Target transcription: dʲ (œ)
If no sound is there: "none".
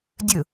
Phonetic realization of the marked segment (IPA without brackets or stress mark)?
ɵ